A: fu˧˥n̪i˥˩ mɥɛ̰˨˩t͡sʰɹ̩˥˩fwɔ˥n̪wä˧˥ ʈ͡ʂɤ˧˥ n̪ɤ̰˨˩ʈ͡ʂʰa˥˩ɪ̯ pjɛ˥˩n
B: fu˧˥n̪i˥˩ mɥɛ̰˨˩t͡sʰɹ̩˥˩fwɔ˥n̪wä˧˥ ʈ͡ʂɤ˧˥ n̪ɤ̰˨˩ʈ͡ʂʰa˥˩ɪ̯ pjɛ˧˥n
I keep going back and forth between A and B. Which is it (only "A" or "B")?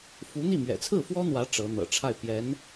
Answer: B